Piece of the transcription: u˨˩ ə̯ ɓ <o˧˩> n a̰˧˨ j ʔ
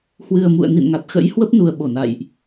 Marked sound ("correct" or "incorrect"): correct